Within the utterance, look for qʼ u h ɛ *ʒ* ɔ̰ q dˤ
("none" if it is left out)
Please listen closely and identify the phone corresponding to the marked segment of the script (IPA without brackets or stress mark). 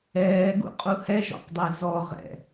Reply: ʒ